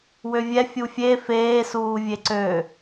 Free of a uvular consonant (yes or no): yes